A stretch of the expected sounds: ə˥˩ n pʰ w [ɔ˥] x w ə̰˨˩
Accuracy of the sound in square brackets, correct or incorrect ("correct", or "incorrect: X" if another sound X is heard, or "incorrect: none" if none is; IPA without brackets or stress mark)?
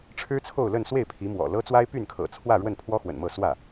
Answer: correct